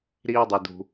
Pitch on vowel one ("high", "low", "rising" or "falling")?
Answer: high